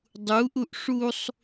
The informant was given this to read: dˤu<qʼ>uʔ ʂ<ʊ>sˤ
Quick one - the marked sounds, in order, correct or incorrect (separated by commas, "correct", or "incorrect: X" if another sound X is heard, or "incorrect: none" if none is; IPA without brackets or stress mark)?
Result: incorrect: ʔ, incorrect: u